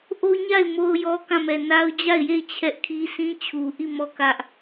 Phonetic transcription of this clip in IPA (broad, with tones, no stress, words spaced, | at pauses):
ʔo˦ɲa˦˨ɪ̯ mo˦ʊ̯jɔ˦ kã˦˨mɛ˨ na˦ʊ̯ d͡ʑa˦˨ɪ̯je˦˨ɪ̯ t͡ɕʰɛ˦ʔkʰi˦ sĩ˦t͡ɕʰu˨ʔi˦˨ mɔ˦˨kä˦ʔ